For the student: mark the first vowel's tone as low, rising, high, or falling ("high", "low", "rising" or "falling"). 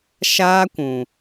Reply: high